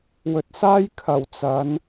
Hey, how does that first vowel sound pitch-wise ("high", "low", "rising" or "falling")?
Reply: rising